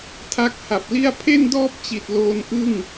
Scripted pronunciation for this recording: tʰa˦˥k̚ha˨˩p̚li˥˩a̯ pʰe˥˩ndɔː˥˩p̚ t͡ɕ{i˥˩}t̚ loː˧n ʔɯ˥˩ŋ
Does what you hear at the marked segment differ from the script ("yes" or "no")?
yes